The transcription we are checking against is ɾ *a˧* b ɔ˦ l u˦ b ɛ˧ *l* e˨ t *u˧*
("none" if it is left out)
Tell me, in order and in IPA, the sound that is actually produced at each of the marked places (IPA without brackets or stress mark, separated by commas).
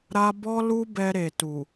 a˦, ɾ, u˨